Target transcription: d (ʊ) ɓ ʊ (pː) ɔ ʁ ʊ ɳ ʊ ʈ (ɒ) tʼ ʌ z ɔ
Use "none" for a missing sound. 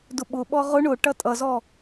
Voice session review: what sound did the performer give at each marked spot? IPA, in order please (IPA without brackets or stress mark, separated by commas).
ʊ, ɓ, ʌ